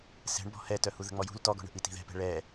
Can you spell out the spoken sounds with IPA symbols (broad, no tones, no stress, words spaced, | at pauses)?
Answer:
sɛ̤ɳbɔ̤ hɛtœhu ðə̤ŋ͡mɔjṳl tɔɡɔ̤ɳə̤ ʔiti̤ðɛ̤pɛ̤ ɭɛ